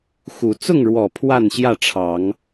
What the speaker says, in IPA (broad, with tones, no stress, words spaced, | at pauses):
xu˨˦ t͡sʊ˥˨ŋɻwɔ˨˩ pʰwa˥˨nɕjä˥˨ʈ͡ʂʰɑ˨˦ŋ